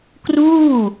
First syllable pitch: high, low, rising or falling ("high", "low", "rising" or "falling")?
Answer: falling